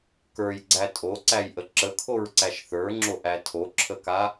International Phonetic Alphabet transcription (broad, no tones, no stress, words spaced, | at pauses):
kə˞jɡ͡ǀæ tʼoǀæjʔə ǁəkʰoɹǀæʃ θə˞ŋ͡ǁoʔæ tʰoǁʰəka